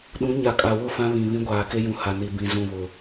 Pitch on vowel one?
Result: rising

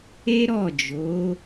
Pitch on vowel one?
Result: high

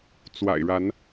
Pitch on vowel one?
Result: low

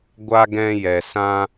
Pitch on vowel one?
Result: high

